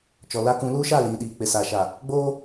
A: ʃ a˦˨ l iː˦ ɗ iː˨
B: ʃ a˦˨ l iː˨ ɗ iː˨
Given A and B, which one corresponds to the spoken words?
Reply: B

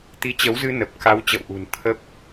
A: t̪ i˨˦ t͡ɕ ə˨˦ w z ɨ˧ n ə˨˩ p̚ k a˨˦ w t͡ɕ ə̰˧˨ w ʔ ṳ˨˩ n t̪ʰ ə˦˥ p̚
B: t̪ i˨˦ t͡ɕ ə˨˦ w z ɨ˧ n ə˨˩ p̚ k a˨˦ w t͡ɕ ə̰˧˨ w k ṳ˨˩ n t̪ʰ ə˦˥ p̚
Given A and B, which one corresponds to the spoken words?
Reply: A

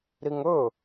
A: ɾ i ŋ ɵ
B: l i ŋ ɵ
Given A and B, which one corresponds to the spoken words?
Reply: A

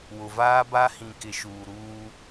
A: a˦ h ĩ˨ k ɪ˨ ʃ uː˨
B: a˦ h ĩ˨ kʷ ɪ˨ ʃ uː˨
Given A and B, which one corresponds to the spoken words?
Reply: A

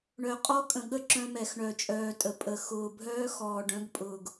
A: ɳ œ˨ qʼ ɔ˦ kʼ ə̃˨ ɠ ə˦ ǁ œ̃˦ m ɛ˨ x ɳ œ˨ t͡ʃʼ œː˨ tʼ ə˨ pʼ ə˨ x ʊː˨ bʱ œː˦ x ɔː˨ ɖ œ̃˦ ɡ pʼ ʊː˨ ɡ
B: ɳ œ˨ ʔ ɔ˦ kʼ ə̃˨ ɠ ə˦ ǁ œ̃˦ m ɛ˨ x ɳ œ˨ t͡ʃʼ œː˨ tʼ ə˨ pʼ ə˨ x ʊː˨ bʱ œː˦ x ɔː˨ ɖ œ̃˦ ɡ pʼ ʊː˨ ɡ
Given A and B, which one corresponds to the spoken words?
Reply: A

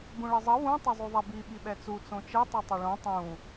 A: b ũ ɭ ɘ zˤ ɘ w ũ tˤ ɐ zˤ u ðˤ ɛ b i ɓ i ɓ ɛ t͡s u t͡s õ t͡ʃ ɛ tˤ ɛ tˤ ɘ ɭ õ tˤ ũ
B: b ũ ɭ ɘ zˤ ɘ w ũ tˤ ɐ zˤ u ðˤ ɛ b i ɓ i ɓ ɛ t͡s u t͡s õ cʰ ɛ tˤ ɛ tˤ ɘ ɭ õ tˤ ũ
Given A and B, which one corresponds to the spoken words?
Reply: A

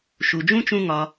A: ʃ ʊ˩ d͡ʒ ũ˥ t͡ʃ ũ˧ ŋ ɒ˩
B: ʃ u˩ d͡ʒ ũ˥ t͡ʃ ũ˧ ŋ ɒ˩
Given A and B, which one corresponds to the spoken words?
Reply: B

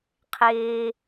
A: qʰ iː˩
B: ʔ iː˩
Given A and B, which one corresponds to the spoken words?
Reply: A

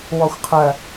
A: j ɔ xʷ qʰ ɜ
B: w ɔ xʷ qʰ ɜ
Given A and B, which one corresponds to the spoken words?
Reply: B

